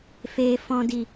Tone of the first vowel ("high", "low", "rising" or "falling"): low